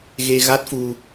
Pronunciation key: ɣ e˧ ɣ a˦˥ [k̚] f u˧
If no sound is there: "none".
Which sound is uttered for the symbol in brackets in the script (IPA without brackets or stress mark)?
t̚